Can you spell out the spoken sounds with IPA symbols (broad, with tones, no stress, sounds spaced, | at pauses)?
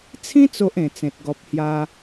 t͡sʰ ĩ˦ t͡s o˦ ʔ ẽ˨˩ t͡s ẽ˨ t̚ ɡ ɔ˨ p̚ h j a˧